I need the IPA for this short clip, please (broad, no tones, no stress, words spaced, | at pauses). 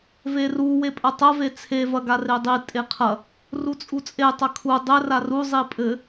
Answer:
veru wepʼɐtˤɐve t͡sʰevɐɡa redˤi tʼeqʰɐ | rut͡sʼut͡sʼe tˤɐkʰu dˤɘ raruzˤi pʼɘ